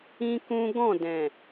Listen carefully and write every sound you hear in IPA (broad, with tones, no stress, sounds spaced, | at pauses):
ĩ˦ k ũ˦ ɡ ɔ̃˦˨ d ɛ̃˨